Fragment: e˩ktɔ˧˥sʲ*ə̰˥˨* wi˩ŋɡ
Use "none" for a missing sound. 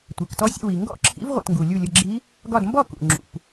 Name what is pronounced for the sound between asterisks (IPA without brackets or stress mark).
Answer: ə̰˥˨